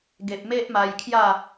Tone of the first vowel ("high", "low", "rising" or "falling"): low